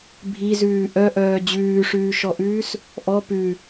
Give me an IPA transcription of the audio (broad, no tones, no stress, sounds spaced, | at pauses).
bʱ i z ʉː ʔ œ ʔ œː d͡ʑ ʉː ʂ ʉː ʃ ɔ ʔ ʉː s | ʔ ɔ p ʉ